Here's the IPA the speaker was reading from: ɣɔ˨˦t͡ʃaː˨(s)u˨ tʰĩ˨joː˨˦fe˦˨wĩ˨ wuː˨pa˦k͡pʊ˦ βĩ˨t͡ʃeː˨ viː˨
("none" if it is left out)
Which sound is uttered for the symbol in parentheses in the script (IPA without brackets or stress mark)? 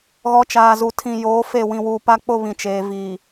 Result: z